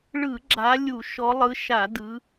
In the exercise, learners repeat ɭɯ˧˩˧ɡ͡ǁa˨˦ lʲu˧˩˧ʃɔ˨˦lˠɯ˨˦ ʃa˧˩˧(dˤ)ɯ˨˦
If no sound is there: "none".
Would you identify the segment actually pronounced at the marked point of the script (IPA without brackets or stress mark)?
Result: d